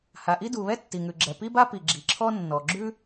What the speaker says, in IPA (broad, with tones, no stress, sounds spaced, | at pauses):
h a˩ ʔ i˥ d u˩ β ɛ˥ tː i˩ ŋ ʉ˩ ɡ͡ǁ ɛ˩ p i˥ b a˥ p i˩ ɡ͡ǁ i˩ ǁʰ ɔ˥ nː ɔ˩ ɡ͡ǁ ʉ˥